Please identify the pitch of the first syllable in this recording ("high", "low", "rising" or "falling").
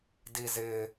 high